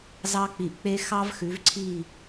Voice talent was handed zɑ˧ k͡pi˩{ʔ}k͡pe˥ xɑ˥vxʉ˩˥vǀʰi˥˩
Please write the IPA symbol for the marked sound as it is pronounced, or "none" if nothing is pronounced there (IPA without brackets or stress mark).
ʔ